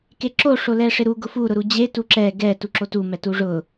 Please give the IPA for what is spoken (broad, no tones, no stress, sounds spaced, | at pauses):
k e ǁ o ʂ o l ɛ ʂ ɪ ɾ u ɡ ʊ f u ɾ ʊ ɾ u d͡ʑ e t u ǁ ɛ ɡ ɛ t u ǁ o t u m ɛ t u ʐ ʊ